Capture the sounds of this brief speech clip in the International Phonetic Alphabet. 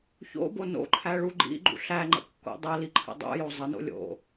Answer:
ç o̰ b o n o̰ ǃʰ æ ɭ u ɡ͡ǃ ḭ ɡ͡ǃ ṵ ɬ æ ŋ͡ǃ ə̰ kː o̰ dˤ ə l i ǃʰ ə̰ dˤ o̰ j o zˤ ə n o̰ lʲ o̰

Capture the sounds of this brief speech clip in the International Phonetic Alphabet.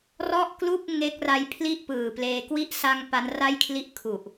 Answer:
r ɔ˥˩ ʔ k l u˥˩ k̚ ŋ e˦˥ k̚ r a˦˥ j pʰ l i˥˩ ʔ p ɯː˨˩ p l eː˧ k w i˦˥ ʔ s a˧ ŋ p a˦˥ n r a˥˩ j kʰ l i˥˩ ʔ kʰ u˨˩ ʔ

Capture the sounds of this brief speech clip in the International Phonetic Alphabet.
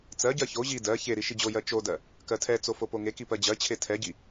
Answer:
t͡s ɜ ɟ ɜ ç o ʑ i d ɜ ç e ɾ i ʃ i d͡ʑ o j ɜ t͡ʃ o d ɜ | k ɜ tʰ ɛ t͡s o f o p o ŋ e k i p ɜ d͡ʑ ɜ t͡ɕʰ e tʰ ɛ ɟ i

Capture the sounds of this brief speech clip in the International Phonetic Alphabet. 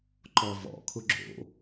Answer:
ǃ ɔ v ɔ̰ kʰ ʊ ɡ͡ǁ o̰

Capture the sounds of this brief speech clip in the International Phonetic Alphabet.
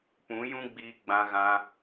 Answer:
p ũ˨˦ j ũ˦ ɡ͡b iː˧ ɡ͡b ã˧ ɣ ã˧

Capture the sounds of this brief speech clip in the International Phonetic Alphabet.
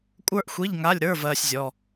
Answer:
kʷʼ ə˞˥ ʔ xʷ i˧˥˧ ʎ ŋ a˧˥˧ lʲ ɾ ə˞˧˥˧ v ɜː˥ sʲ zʲ ɔ˧˥˧

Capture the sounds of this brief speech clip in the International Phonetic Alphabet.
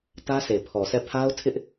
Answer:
t ä˦ sʰ e˨ pʰ ɔ˨ sʰ ɛ˦˨ pʰ a˦ ʊ̯ tʰ ɪ˦ ʔ

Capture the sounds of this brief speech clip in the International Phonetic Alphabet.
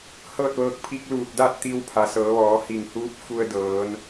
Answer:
h ɤː˥˨ t̚ ʋ ɤː˧ k̚ pʰ i˧˥ k̚ l uː˧˩ t̚ d a˥˨ t̚ t̪ i˧ w pʰ a˩ s ɤː˩˧ ʋ ɔː˩˧ h i˧˩ ŋ h uː˧˥ p̚ f u˧ ə̯ d ɤː˩˧ n

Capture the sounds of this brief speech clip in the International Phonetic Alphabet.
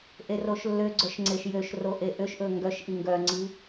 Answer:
ʔ e r o ʃ lː ø ɡ͡ǀ œ ʃ ŋ͡ǀ e ʃ j ø ʃ r o ʔ e ʔ ø ʃ ʔ ɵ ŋ ɡ œ ʃ ʔ i ŋ ɡ œ ŋ͡ǀ i

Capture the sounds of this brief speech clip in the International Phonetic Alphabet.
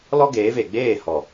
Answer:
l ɔ˦ ɡ eː˨˦ v e˨ ɡ͡b eː˦˨ h ɔ˨

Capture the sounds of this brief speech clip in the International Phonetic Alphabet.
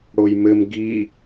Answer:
ɽ o j m ɘ m ɡ i

